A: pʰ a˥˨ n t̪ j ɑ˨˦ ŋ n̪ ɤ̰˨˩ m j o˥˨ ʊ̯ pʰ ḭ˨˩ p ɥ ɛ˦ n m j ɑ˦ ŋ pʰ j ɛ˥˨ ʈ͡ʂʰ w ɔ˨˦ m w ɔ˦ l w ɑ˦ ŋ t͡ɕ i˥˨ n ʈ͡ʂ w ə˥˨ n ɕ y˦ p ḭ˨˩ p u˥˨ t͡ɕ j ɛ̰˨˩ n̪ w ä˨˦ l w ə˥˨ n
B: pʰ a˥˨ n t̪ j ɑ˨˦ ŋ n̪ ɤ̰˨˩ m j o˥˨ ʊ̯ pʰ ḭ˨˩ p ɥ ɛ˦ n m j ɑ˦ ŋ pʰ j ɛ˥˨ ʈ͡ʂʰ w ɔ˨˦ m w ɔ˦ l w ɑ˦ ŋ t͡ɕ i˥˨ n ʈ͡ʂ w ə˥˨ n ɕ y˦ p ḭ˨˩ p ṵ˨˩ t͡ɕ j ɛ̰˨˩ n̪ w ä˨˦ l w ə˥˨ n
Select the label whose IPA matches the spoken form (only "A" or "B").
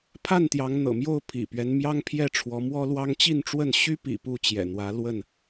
A